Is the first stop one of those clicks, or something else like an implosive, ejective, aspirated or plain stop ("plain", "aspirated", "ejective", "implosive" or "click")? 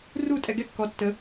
ejective